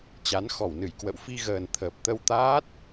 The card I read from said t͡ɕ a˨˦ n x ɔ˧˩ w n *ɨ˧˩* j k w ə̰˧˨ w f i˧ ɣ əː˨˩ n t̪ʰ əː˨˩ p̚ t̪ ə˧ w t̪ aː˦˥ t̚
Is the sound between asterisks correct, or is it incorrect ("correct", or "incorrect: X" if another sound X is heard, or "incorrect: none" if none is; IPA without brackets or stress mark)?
correct